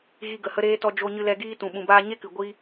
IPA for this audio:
ɣ i˧ ɡ ə˨ h ə˦ ɾ eː˦ t ɔ˧ d͡ʒ o˧ ɲ ɨ˧ l ɛ˧ ɡ iː˦ t ũ˨ ɓ ũ˨ b aː˧ ɲ e˦ k ɨ˨ ɡʷ i˦

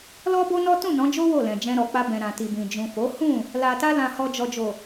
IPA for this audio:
l ɔ˦ b o˦ n ɔ˦ t ũ˦˨ n ɔ̃˨˦ d͡ʒ o˦ w o˦˨ l ɛ̃˨ d͡ʒ ɛ̃˧ ɾ ɔ˨ k͡p a˧ b ɛ̃˨ ɾ ã˨ t i˨ b ĩ˨ d͡ʒ ũ˨ f o˨˦ h ũ˦˨ | l a˨ t a˧ l ã˨ h ɔ˨ d͡ʒ ɔ˨ d͡ʒ o˨

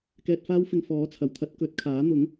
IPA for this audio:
k ɛː˧ t̚ f aː˥ w f ɪ˧ ŋ f ɔː˨˥ t͡sʰ ɐ˨˩ w t̪ʰ ɐ˥ t̚ k ɵ˨˥ t̚ kʰ aː˨˥ n̪ ʊ˨˥ ŋ

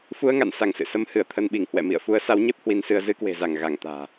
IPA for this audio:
f u˧ ə̯ ŋ a̰˧˨ n s a˧˩ ŋ s ɨ̰˧˨ s ə˧ m h ɨ˧˩ ə̯ t̪ʰ ə˧ n ɓ i˧˩ ŋ h w ɛ̰˧˨ m ḭ˧˨ ə̯ f u˨˦ ə̯ s a˨˦ w ɲ e˦˥ p̚ h w i˧ n s ɨ˧ ə̯ z ɨ˧ k w e̤˨˩ z a˧˩ ŋ ɣ a˧˩ ŋ t̪ a̤ː˨˩

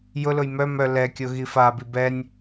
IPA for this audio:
j ʊ l ʊ j m œ m œ l ɛ kʲ o ɣ i f a b i b ɛ nʲ

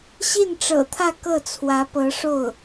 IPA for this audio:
ɕ i˥˩ n ʈ͡ʂ ɤ̰˨˩ t̪ʰ ä˥˧ k ɤ˥˩ t͡sʰ w ä˧˥ p ɤ˧˥ ʂ o˥˩ ʊ̯

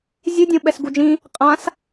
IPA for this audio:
zʲ ɯ dʲ õ ɓ ɛ s ɡ u d͡ʒ ĩ | qʼ ã s

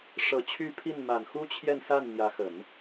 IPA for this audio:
ʂ ɤ˨˩ t͡ɕʰ y˥˧ pʰ i˥˩ n m a˨˩ n x u˥ t͡ɕʰ j ɛ˥˧ n s a˥˩ n n̪ j ä˧˥ x ə˨˩˦ n

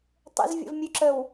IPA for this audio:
tˤ ə̰ z vʲ ə̰ v mʲ ʉ ǁ ə w

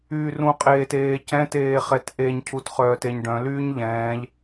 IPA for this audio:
yː r ũ qʼ eː t eː c ɛ̃ t eː χ ɛ t ʔ e ɲ cʰ u t χ œː t e ɲ ɖ œ̃ l yː ɲ ʎ ɛ̃ː ʎ

